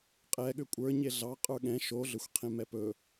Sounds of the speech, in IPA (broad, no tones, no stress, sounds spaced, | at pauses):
qʼ ɛ ɠ ʏ kʷʼ ə˞ ɲ e ɮ ɑ qʼ ə˞ ɠ ɛ̃ ʃ o ɮ ʏ xʷ qʰ ẽ m ɛ p ɵ